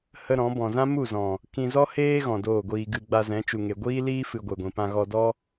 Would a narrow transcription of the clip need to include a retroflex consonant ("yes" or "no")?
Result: no